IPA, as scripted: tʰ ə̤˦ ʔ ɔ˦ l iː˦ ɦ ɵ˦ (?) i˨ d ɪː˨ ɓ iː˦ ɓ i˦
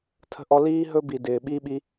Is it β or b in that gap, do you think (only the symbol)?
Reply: b